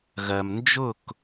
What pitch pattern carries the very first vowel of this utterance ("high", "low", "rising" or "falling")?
low